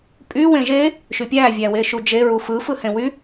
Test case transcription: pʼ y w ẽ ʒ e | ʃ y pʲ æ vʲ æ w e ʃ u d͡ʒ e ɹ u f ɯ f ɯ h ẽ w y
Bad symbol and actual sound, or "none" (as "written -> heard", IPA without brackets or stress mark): none